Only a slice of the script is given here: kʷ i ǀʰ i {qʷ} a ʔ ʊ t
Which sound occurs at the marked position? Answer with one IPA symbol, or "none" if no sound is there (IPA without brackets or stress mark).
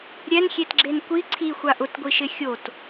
xʷ